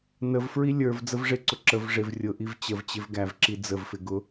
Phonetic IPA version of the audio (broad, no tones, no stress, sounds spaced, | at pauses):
n ə v f ɹ i lʲ ə˞ v d͡z ə v ʐ ɪ ǀ ʊ ǁ ə v ʐ ɪ v rʲ ʊ ʔ i v t͡ɕ ə v t͡ɕ ɪ v ɡ æ v ǁ i d͡z ə v f ɪ ɡ ʊ